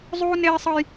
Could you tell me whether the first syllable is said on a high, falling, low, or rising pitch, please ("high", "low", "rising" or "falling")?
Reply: high